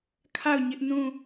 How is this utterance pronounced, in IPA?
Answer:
kʰa˦˨ʊ̯ɲɪ˦ʔ nũ˦˨

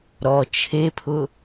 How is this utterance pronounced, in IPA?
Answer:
ɾɔ t͡ʃʰepʰʊ

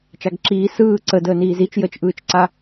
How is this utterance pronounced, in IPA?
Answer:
t͡ʃaɡǁiː sɯː ǀə dəːniːzit͡ʃ jət͡ʃʔɯːt͡ʃǀa

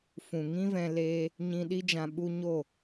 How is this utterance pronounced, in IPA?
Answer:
fũ˨ŋĩ˦vɛ̃˧ leː˧ | ɲĩ˧ɗi˦d͡ʒã˧ ɓu˧ ɲo˦˨

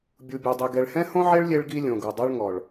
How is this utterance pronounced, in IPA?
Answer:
bʲu˨bʲe˨dˤi˨ ɡɛ˨ɭhɛ̃˦hõ˦ʕe˦ɭ lʲe˦ɭɡi˦ lʲõ˨ ɡu˨dˤo˦ɭŋɔ˨ɭ

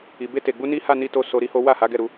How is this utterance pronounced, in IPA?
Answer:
i˨be˧te˨ɡ͡bu˧ ni˦ha˦˨ni˧to˧ so˧ɾi˦ho˦ wa˦˨ha˨˦ɡɛ˦˨ ɾu˧

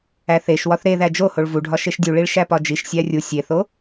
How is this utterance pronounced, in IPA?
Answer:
æθeʃwɒθ ɾeðæ d͡ʒohoɭ vuɖʱɒ ʃeʃdʲuɭiɭ ʃæpɒd͡ʒiʃsʲæ rʲu sʲeθo

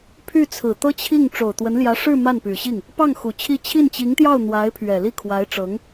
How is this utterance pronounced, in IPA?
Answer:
pʰy˥˩t͡sʰɹ̩˨˩ t̪ɤ˥t͡ɕʰi˥˩ŋ ʈ͡ʂo˨˩ʊ̯t̪wə˧˥nljä˧˥ ʂɻ̩˥˧ ma˥˩npy˨˩ɕi˥˩ŋ | pɑ˥˩ŋ xu˨˩ t͡ɕʰi˥˧ t͡ɕʰi˥˩nt͡ɕi˧˥ŋt̪jɑ˥˩ʊ̯ n̪wa˧˥ɪ̯pʰɥɛ˨˩ li˥˩kʰwa˧˥ɪ̯ʈ͡ʂɤ˧˥ŋ

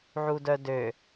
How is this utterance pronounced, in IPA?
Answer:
ʕudœdø

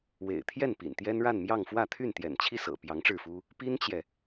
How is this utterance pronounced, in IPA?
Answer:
wḛ˨˩ɪ̯t̪ʰjɛ˥˩npḭ˨˩n t̪jɛ˥nɻa˥˧n mjɑ˥˧ŋfwä˥˧ t̪ʰy˥˩nt̪jɛ̰˨˩nt͡ɕʰi˥˩sɤ̰˨˩ pjɑ˧˥ŋʈ͡ʂɻ̩˥˩fu˥ | pi˥nt͡ɕjɛ˨

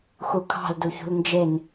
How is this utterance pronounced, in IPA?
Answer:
xukʰɑ̤l duçṳlnd͡ʒen

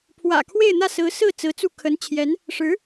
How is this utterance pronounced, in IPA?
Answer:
pʰwä̰˨˩kʰwe˥˧ɪ̯n̪ä˥˩ sɹ̩˧˥sɹ̩˥˩ t͡sɹ̩˧˥t͡su˥˩ kʰə˧˥nt͡ɕʰjɛ˧˥n | ʂɻ̩˧˥

